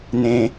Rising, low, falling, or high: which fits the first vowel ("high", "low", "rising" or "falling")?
low